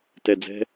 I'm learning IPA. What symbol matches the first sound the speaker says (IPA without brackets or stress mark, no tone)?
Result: t